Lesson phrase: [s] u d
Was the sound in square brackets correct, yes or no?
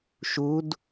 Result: no